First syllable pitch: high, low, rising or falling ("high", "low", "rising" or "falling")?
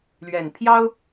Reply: low